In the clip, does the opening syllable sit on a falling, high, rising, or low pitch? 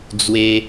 high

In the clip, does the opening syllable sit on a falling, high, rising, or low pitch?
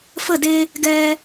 falling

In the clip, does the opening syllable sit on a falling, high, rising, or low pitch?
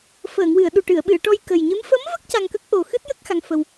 low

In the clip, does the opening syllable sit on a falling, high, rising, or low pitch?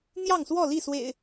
falling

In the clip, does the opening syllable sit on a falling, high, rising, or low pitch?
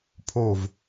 falling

